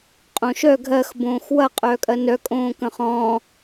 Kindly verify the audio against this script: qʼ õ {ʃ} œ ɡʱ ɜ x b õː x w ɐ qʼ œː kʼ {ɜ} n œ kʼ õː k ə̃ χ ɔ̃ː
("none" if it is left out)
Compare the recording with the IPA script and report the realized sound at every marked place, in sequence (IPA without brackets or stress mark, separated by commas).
ʃ, ɜ